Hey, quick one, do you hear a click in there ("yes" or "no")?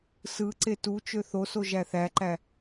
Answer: yes